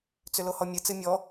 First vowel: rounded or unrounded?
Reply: rounded